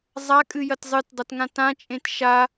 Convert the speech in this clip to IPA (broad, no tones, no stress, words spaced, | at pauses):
zˤakʼɨjɐt zˤɨtdˤɐtŋã tãt͡ʃʼẽt ʃa